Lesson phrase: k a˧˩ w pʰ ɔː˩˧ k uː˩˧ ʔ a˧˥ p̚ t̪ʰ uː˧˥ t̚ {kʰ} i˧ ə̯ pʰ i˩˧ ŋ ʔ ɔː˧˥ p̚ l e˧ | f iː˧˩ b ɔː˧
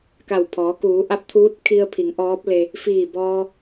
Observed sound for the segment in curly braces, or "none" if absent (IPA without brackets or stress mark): kʰ